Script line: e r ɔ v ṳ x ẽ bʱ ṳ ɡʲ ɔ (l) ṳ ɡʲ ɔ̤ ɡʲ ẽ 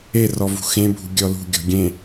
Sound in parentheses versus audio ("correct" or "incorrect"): correct